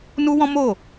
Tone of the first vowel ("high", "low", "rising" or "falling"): high